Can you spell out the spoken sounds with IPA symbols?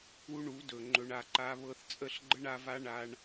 u˦ ɳ u˨˦ d ɵ˨ ŋ͡ǃ ɵ˨ ɳ a˨ ǃ a˧ β ɤ˧ θ t͡sʼ ə˦˨ ɬ ɡ͡ǃ ə˦ ɳ a˧ v a˦ ɳ a˦ ɳ

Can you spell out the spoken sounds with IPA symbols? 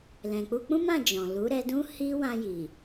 l ɛ̃˨ k͡p u˧ k͡p ũ˦ m ã˦˨ d͡ʒ ɔ̃˨ l u˨˦ ɾ ɛ˧ d ũ˦ h i˦ w ã˧ j i˨

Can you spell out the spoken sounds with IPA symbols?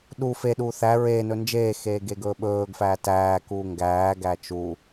ɗ u f e ɗ uː θ æ ɹ eː n ɵ n d͡ʒ eː x eː ɡ e ɡ ɵː ɓ ɵː ɡ f æː t æː k u ŋ ɡ æː ɡ æ t͡ʃ u

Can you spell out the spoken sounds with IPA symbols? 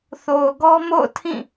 θ o˨ ʊ̯ ɡ ɔ˦ m o̰˦˨ ʊ̯ tʰ ĩ˦˨

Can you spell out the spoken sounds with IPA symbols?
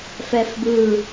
f ɛ f b ɯ

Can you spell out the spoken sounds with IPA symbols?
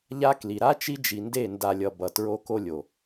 ʎ a˦ k l i˨ ɾ a˦ t͡ʃ i˦ d͡ʒ i˨ n d e˦˨ n d a˨ lʲ ʌ˨ b ʌ˨ t ɹ o˦ k o˦ lʲ o˨

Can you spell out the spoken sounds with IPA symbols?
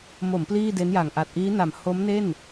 m o˩˦ m p l iː˥˩ d e˦˥ n j a˨˩ ŋ ʔ a˨˩ t̚ ʔ iː˦˥ n a˨˩ m h o˦˥ m n e˥˩ n

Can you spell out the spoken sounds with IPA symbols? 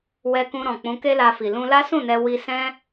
w ɛ˧ k ũ˧ ɾ ɔ̃˨ k͡p ũ˨˦ k e˦ l a˧ f i˨ l ũ˧ l a˦ s ũ˦˨ n ɛ˧ w i˧ s ɛ̃˦

